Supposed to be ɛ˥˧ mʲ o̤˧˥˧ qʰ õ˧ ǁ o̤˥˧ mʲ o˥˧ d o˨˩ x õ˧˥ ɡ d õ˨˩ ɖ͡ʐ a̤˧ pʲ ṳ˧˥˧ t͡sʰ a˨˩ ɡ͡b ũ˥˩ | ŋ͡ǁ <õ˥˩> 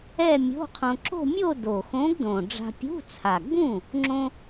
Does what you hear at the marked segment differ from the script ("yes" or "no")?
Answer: yes